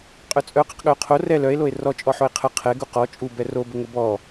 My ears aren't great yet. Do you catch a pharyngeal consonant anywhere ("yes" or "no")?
yes